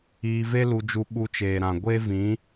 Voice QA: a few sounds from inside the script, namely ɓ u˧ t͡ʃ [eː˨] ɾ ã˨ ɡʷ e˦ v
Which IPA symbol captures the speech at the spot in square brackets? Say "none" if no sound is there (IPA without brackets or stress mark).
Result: eː˨